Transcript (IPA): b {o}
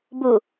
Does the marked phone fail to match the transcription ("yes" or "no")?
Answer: yes